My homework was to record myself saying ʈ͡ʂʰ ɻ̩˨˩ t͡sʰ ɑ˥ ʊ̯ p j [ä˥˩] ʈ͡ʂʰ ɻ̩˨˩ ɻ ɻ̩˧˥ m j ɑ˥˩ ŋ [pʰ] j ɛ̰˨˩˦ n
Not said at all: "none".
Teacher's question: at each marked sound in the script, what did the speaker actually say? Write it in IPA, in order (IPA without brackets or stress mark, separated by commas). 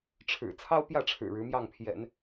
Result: ä˥˩, pʰ